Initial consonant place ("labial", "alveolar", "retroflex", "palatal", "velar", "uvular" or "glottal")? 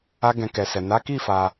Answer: velar